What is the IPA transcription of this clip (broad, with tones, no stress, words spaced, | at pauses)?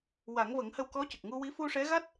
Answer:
wa˨˩˦ŋvə˨˩˦ŋhə˧w kɔ˧˥cə˨˩k̚ŋu˧wi˧˥ fu˧ʂɛ˧˥ɣa˦˥t̚